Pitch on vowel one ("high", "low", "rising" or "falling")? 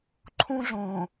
high